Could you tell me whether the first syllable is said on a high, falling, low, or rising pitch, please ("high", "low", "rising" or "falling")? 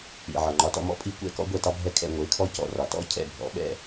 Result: low